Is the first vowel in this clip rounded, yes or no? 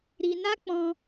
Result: no